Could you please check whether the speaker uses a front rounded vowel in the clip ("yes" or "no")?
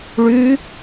yes